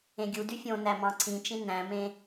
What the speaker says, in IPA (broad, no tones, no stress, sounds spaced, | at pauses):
ẽ ɡʲ u d y fʲ õ n æ m ɑ̃ ǀʰ ĩ t͡ʃ ĩ n æ̃ m ẽ